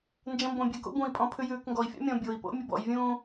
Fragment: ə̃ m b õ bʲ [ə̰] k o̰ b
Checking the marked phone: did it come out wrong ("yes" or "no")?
yes